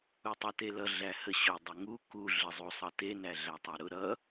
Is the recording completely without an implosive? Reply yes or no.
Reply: yes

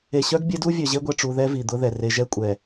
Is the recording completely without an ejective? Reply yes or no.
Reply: no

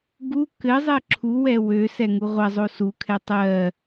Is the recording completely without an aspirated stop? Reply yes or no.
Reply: no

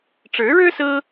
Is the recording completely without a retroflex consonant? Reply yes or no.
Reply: no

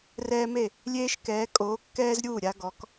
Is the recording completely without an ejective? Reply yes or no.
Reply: no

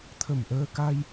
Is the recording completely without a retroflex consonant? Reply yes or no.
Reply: yes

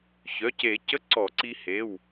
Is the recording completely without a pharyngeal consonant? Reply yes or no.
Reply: yes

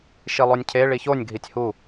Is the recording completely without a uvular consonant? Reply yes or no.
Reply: yes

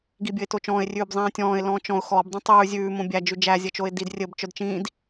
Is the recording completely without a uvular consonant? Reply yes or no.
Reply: yes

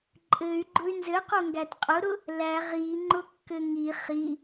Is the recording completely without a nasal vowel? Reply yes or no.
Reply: yes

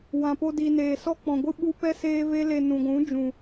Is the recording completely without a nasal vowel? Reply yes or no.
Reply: no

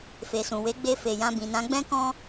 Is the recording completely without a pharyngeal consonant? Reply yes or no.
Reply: yes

